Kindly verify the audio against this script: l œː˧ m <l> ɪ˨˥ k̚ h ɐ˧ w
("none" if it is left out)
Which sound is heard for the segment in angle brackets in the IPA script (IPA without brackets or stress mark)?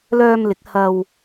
l